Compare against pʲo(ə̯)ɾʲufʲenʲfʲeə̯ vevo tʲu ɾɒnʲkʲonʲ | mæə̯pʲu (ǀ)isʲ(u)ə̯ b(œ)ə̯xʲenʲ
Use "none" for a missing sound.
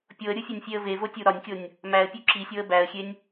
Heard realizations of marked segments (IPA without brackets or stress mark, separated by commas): ə̯, ǁ, o, æ